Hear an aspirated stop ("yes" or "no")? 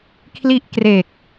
yes